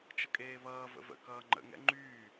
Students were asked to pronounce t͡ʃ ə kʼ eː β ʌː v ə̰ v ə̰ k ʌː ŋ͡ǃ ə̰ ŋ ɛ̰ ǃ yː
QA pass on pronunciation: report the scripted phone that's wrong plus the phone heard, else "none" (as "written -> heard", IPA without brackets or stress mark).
ǃ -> ŋ͡ǃ